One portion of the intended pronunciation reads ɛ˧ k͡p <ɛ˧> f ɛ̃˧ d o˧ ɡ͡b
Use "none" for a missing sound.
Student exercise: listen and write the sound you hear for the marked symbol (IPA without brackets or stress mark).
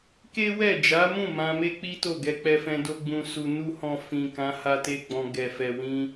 ɛ˧